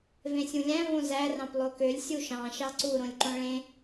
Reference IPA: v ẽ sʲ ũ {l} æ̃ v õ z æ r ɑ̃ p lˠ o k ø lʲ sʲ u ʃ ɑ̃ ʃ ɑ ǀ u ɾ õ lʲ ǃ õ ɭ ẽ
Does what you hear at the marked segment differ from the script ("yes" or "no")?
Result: yes